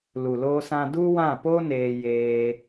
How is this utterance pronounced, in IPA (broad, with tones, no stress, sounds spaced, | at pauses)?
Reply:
l u˨ l oː˧ s ã˧ d u˦ w ã˦˨ p o˦ n eː˧ j eː˦